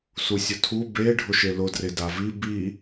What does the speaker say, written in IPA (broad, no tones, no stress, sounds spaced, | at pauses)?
s u sʲ ʊ tʰ u b e ɖʱ ʊ ʃ e l ʊ d r e d a v i b i